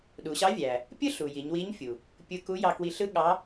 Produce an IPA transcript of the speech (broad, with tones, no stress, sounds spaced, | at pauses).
ɗ u˩˧ ɕ ɑ˧˥ vʲ æ˩ | pʲ ɯ˥ ɬ u˩ j i˩˧ ɲ w i˧˥ ɲ fʲ u˩ | pʲ ɯ˧ k u˧˥ j ɑ˧ k w i˧ ɬ ɯ˥ ɠ ɑ˧˥